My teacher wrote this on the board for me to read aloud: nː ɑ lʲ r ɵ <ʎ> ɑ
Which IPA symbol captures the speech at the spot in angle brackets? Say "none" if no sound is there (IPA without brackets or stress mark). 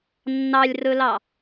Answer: l